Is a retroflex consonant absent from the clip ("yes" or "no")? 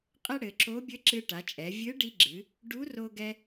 no